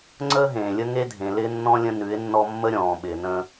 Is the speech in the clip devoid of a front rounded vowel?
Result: yes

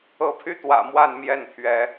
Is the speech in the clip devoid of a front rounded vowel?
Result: no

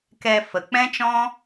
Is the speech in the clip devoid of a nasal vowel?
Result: no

